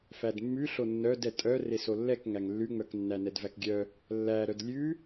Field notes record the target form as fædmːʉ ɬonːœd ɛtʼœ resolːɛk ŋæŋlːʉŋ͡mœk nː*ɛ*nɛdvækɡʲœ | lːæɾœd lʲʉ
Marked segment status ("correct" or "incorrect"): incorrect